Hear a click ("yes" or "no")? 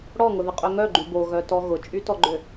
yes